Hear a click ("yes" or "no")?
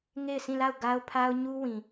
no